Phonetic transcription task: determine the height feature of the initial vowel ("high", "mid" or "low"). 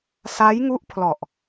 low